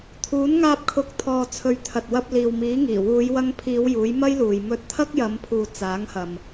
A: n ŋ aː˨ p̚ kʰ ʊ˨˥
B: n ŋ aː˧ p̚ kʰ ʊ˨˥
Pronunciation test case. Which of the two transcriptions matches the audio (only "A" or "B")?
B